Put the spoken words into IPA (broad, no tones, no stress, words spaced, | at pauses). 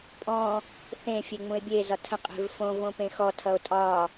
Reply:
pʼɔ̃ | θẽ fʲeŋ͡mũe̯bʲe zɒtʰə̃ qʼe̤vfõ võpẽxɔ tʰʌo̯tʼɒ